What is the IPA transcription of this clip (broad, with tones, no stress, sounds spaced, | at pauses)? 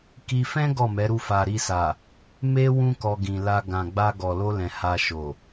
k i˧ f ɛ̃˦ ɡ ɔ˦˨ m ɛ˨˦ ɾ u˦˨ f a˨ ɾ i˧ s a˨ | m e˦ w ũ˦ k ɔ˧ ɡ ĩ˨ l a˧ ɡ ã˨ ɡ͡b a˧ ɡ ɔ˨ l o˧ l ɛ̃˨ h a˧ ʃ o˨